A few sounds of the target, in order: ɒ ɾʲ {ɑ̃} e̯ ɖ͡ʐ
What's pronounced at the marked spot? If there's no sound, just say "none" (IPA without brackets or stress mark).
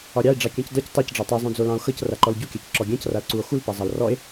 ɑ